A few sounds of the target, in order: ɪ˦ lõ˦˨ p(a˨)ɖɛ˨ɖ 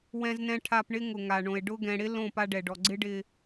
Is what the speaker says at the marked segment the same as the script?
no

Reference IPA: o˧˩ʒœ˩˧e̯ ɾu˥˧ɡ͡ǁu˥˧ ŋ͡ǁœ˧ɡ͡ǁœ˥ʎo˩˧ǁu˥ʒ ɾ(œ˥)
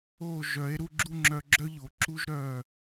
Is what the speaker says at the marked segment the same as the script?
no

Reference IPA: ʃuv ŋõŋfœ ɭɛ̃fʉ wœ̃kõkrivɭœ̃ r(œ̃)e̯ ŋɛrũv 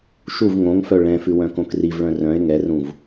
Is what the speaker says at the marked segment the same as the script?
yes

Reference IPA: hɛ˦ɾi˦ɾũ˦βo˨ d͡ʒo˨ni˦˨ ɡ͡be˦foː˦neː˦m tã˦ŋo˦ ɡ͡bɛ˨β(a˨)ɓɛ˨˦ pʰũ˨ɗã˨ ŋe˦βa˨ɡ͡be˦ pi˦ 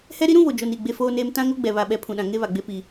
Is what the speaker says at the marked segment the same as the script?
yes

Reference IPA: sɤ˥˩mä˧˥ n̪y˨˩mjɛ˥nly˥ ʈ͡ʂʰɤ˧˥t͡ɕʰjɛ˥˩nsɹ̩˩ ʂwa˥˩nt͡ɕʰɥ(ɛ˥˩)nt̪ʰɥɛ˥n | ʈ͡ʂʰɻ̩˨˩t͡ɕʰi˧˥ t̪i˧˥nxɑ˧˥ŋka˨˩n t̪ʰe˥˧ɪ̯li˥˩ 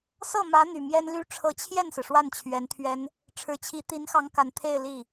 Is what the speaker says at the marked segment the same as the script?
no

